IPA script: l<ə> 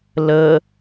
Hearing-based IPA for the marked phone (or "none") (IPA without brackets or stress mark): ə